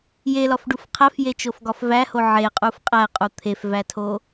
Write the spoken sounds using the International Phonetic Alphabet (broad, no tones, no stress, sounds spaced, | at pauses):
j e l ɒ f ɖ u f qʰ æ f j e t͡ʃ o f ɡ ɒ f v æ h o ʕ e qʼ u f qʼ æ qʼ u t̪ʰ e f v æ tʰ o